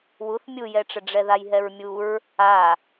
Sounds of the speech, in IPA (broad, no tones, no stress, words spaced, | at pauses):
wuθ mʲujɛʈ͡ʂə ɖ͡ʐɛðajɦɛɹmʲuɹ | a